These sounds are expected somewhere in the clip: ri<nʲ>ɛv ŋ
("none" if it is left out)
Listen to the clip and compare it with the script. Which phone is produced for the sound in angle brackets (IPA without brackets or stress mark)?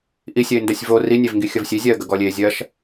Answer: nʲ